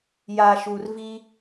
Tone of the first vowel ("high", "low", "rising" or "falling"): low